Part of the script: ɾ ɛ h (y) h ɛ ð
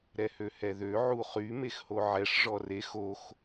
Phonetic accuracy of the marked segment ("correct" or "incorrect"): incorrect